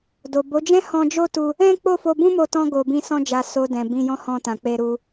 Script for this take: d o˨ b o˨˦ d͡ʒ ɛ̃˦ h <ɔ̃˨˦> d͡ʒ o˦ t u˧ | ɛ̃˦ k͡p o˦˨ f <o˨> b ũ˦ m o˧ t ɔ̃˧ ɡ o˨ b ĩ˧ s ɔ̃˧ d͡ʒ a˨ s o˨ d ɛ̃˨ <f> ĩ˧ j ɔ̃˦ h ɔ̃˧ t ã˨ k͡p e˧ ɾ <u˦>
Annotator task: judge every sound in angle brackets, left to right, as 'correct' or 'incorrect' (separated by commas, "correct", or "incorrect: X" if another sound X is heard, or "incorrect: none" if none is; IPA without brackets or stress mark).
incorrect: ɔ̃˧, incorrect: o˧, incorrect: b, incorrect: u˧